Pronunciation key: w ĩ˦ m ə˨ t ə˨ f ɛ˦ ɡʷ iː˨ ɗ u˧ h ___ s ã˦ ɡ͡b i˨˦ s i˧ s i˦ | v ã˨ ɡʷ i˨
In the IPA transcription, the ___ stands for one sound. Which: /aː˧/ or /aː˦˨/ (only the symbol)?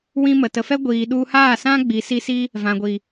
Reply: aː˦˨